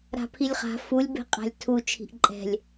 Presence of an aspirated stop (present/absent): present